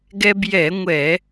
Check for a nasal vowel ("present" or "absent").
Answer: absent